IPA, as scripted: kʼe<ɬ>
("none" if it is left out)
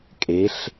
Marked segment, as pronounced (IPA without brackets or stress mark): ɬ